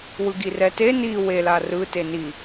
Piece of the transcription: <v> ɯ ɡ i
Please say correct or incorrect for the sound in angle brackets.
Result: incorrect